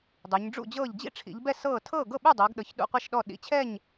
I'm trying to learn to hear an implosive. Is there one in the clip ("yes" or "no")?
yes